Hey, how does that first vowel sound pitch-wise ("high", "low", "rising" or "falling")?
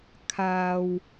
low